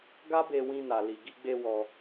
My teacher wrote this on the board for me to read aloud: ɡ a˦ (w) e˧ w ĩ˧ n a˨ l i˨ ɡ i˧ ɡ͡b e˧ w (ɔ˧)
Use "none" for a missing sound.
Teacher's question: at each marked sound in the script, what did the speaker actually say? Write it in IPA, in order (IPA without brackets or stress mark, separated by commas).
b, ɔ˧